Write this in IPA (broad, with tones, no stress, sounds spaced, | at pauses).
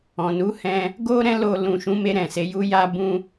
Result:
ɔ̃˨ n u˨˦ h ɛ̃˧ | ɡ o˦ ɾ ɛ̃˦ l o˧ l ũ˨ ʃ ũ˨˦ m e˧ ɾ ɛ̃˨ s e˨˦ j u˦ j a˦ b ũ˧